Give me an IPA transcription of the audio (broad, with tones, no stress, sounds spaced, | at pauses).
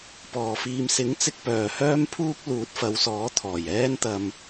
p ɔː˨˩ f iː˨ m s ɪ˨˥ ŋ t͡s ɪ˧ k̚ p œː˨˩ h œː˥ m pʰ uː˥ k̚ l uː˨˥ t̚ f ɐ˨˧ w s ɔː˨˥ t̪ʰ ɔː˨˩ j ɛː˥ n t̪ ɐ˧ m